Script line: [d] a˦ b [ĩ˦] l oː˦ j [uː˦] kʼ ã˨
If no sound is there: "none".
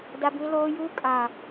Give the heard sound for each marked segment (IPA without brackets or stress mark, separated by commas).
d, ĩ˦, uː˦